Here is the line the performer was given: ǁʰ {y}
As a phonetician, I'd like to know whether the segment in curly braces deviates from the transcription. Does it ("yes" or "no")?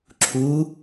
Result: yes